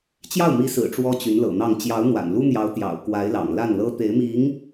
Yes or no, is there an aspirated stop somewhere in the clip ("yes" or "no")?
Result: no